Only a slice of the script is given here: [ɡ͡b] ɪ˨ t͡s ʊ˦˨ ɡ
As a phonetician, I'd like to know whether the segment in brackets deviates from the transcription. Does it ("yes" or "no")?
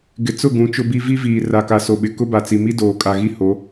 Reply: yes